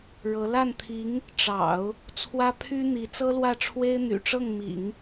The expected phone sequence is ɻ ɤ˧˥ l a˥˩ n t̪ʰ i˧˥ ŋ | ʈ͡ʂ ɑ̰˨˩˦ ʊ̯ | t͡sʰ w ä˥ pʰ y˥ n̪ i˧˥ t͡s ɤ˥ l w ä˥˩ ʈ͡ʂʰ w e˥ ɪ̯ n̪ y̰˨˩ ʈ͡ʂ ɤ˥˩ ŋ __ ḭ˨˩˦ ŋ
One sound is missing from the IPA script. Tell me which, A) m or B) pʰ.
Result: A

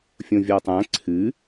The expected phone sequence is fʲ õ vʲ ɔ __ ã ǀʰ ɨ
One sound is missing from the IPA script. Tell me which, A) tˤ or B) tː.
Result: A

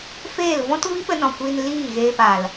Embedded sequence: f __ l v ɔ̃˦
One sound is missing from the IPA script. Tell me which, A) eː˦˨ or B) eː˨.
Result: A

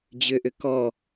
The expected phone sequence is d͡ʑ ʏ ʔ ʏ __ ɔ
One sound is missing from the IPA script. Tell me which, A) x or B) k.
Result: B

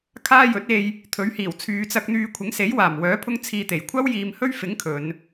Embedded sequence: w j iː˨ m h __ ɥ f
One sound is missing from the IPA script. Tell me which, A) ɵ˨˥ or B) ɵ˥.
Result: B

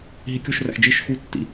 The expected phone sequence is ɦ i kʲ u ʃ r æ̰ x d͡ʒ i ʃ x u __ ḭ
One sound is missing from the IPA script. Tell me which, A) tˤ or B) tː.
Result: B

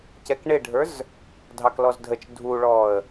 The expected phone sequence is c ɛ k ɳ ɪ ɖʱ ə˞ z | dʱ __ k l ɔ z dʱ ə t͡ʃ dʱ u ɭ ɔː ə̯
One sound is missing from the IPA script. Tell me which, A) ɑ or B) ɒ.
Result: A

